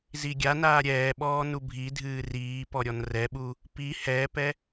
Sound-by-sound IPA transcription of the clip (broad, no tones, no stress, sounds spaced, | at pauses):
z i ɡʲ a n aː ɾʲ ɛː ɓ ɔː n u bʱ i dʱ ɨː r iː p ɔ ɾʲ ɔ n r ɛ ɓ u | p i h ɛː p ɛ